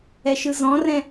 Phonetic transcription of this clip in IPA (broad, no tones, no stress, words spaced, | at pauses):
ɛʃɯzɔ̃rɛ̃